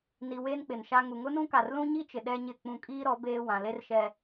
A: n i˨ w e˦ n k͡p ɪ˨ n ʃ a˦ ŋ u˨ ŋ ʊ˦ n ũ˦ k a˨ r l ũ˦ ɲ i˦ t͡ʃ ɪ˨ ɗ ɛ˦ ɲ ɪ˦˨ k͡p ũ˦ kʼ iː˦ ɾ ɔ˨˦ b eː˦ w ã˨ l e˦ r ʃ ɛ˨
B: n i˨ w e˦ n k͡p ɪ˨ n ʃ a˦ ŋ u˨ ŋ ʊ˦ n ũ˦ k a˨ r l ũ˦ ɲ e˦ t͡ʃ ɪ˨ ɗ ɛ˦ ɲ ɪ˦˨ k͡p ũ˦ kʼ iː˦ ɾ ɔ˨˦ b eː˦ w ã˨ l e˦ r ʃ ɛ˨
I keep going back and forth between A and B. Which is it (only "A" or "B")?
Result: A